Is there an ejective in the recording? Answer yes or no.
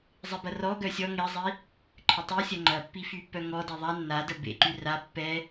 no